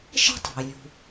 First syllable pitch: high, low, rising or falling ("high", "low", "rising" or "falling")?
high